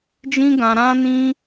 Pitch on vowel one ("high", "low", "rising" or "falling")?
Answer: high